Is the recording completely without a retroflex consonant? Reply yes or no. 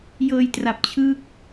yes